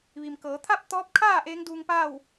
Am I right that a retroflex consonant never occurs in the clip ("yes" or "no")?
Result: yes